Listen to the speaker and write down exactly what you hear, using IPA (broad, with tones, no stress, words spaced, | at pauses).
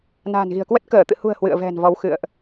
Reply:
na̤˨˩nɣi̤˨˩ə̯kwə˦˥t̚ kəː˧˩t̪ɨ̰˧˨hṳ˨˩ə̯ hwɨ̰˧˨ə̯vɛ̤˨˩n vɔ˨˦wxɨ̰˧˨ə̯ʔ